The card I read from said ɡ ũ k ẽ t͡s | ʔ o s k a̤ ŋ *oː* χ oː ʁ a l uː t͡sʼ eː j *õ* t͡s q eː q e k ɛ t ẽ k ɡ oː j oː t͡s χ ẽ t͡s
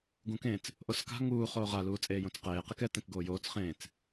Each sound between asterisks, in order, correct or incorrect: incorrect: uː, correct

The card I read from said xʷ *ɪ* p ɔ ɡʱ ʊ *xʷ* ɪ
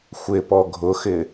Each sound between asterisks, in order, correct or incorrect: correct, incorrect: x

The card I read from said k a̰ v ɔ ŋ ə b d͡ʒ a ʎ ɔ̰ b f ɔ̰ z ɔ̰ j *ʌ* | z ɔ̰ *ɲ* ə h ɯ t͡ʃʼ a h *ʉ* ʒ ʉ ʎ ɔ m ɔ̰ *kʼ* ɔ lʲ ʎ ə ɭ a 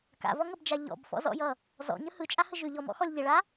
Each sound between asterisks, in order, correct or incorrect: correct, correct, incorrect: ə, incorrect: x

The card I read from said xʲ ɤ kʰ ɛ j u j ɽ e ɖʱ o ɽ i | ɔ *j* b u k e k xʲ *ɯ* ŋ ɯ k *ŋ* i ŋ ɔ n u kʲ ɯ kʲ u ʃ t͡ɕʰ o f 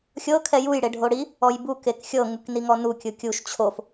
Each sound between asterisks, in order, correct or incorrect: correct, incorrect: ɤ, incorrect: n

